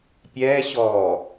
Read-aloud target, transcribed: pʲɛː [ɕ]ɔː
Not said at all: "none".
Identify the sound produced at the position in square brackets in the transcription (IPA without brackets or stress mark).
ɕ